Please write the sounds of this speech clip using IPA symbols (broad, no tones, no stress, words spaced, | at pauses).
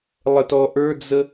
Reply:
lˠətɔ ʔə˞d͡zə